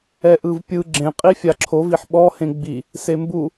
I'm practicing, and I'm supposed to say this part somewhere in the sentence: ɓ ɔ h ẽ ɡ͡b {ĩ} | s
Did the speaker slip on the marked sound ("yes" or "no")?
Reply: yes